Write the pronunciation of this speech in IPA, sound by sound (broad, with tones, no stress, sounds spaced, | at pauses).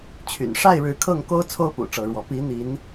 t͡ɕʰ y̰˨˩ n ʂ a˥˨ ɪ̯ ɻ ɻ̩˨˦ kʰ ɤ˥˨ ŋ k o˦ ʊ̯ t͡sʰ o˦ ʊ̯ p ṵ˨˩ ʈ͡ʂ ɤ˨˦ ɻ w ɔ˨˦ p i˨˦ n̪ i˨˦ n